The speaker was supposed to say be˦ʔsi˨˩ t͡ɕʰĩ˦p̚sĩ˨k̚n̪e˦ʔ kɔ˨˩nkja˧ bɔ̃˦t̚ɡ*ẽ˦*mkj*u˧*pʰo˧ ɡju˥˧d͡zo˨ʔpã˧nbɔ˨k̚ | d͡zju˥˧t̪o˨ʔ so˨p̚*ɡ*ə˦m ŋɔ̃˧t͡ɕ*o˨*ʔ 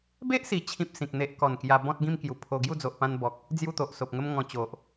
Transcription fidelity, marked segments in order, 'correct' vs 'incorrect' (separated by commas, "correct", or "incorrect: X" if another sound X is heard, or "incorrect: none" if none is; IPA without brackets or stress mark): incorrect: ĩ˦, incorrect: u˨˩, incorrect: ŋ, correct